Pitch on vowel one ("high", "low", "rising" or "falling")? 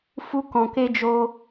high